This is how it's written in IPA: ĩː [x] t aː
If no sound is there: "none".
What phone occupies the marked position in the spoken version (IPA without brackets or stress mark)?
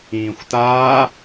xʷ